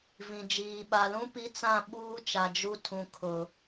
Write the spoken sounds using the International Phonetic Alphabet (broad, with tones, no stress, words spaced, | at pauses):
vĩ˨ d͡ʒiː˨ɓa˨lũ˦ pi˦ t͡sã˦˨ɓuː˦t͡ʃa˨ d͡ʒu˦ tʰũ˨ kʰʊ˨